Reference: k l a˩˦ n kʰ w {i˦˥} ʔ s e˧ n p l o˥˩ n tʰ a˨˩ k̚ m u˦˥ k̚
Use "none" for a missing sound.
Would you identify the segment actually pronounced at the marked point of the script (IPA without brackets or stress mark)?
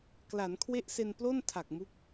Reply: e˦˥